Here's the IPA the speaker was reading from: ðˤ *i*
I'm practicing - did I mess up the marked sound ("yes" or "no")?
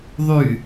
yes